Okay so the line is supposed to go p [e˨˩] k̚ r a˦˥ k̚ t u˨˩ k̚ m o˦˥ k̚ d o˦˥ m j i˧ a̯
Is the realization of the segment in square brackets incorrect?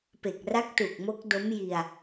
no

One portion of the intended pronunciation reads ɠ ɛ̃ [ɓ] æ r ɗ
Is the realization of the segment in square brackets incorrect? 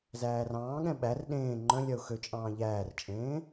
no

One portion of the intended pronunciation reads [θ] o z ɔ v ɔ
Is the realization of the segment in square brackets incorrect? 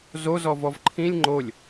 yes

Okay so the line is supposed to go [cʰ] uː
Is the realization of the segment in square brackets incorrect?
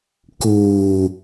yes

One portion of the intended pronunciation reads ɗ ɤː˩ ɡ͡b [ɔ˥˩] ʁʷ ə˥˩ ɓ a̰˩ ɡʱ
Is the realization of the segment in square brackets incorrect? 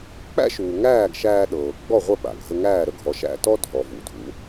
no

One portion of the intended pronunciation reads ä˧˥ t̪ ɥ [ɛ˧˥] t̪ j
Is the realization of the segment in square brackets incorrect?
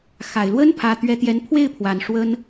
no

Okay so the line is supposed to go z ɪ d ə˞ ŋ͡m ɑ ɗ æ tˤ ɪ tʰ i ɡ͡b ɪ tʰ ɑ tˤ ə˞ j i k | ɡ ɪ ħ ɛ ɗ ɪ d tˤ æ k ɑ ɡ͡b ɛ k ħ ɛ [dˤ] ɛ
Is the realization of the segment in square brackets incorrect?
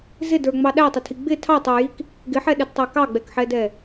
yes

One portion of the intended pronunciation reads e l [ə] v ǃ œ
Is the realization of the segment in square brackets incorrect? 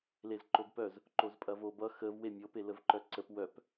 no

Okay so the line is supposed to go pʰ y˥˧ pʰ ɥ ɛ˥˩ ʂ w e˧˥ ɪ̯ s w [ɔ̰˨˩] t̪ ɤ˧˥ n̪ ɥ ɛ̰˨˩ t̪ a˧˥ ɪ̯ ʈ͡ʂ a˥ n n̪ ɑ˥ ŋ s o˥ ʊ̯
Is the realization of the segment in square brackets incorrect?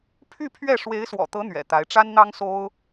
no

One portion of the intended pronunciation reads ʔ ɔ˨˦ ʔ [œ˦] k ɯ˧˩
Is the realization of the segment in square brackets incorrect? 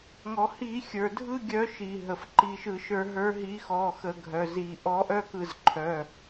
no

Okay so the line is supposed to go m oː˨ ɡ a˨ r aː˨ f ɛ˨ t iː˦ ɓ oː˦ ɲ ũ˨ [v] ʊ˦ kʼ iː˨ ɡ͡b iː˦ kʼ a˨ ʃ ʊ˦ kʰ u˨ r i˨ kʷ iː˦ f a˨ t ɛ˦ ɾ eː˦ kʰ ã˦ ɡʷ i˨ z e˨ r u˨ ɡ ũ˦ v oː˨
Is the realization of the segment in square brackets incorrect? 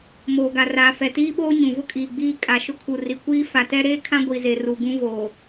no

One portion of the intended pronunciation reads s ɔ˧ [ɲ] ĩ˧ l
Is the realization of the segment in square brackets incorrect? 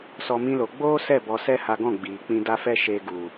yes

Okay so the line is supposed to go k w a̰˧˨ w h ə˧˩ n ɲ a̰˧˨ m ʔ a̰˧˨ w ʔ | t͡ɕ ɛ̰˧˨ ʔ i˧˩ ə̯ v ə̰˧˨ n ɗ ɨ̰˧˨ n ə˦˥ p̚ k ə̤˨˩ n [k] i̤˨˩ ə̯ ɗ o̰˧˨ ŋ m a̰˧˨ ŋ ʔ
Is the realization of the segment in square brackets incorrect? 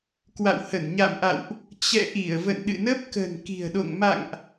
no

